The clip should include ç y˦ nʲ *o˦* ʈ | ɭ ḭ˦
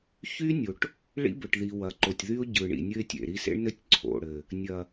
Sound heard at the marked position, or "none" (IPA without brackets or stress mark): o˨